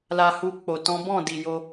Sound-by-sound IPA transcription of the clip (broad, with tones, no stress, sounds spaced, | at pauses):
l a˧ h u˧ k͡p o˨ t ɔ̃˨˦ b ɔ̃˦˨ d i˨ j o˧